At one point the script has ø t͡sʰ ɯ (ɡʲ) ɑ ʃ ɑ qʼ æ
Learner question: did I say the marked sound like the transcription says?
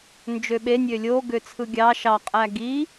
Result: yes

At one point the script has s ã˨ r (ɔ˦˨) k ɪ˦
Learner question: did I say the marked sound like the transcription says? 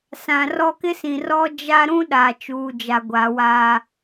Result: no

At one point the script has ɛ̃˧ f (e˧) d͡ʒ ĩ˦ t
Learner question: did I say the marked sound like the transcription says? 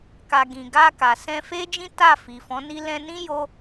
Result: no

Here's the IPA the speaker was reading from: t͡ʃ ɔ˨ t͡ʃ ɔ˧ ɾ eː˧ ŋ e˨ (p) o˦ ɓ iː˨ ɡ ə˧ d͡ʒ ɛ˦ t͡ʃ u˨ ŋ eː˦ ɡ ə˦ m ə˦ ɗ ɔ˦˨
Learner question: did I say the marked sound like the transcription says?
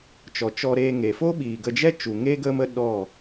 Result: no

